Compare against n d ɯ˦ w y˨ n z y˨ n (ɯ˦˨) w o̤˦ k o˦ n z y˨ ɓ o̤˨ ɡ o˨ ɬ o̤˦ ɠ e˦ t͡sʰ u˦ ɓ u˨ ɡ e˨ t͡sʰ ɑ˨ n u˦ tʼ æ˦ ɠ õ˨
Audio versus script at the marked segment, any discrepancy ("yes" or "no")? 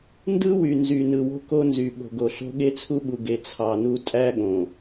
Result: yes